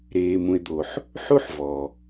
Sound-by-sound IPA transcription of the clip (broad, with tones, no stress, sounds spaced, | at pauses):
ɾ eː˨ m ũ˨ e̯ d̪ o˨ ħ | ħ u˦ ħ v ɔ˨